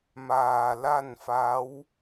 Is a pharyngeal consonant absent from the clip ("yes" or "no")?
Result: yes